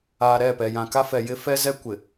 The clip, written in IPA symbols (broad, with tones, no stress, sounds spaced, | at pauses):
aː˨ ɾ ɛ˦˨ p ɛ˨ j ã˨ k a˦ f ɛ˨ j ɪ˦ f ɛ˦ z ɛ˦ kʷ ɪ˨